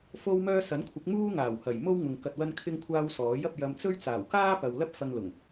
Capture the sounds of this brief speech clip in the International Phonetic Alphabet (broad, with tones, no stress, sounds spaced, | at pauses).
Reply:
f o˧ w m œː˧ s ɐ˨˥ n kʷʰ ɪ˨˥ k̚ m uː˥ ŋ aː˨˩ w h ɐ˨˩ j m o˥ w ŋ ʊ˨ ŋ k ɐ˨ t̚ w ɐ˧ n kʰ ɪ˧ ŋ kʷʰ aː˧ w s ɔː˨˥ j ɐ˧ p̚ j ɐ˧ m t͡s ɵ˥ ɥ t͡s aː˨˩ w k aː˥ p ɐ˨ w l ɐ˥ p̚ f ɐ˧ ŋ l ʊ˨˩ ŋ